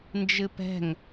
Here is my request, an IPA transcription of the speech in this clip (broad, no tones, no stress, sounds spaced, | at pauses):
n d͡ʒ ɨ p ɛ̤ ŋ